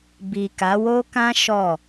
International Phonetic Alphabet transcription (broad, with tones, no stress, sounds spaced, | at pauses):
b i˨ k a˨˦ w o˦ k ã˦ ʃ ɔ˦˨